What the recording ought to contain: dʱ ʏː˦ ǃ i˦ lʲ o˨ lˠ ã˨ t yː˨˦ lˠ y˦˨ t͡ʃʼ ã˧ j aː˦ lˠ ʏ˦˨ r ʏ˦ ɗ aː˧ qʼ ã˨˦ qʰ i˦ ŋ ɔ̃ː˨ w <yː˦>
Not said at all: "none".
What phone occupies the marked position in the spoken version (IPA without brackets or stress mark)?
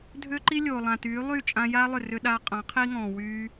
yː˧